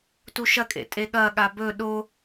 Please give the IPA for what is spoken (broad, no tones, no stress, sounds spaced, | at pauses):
t u ʃ ɐ kʼ ḛ tʼ e ɠ ɐ ɠ a b ɵ ɗ o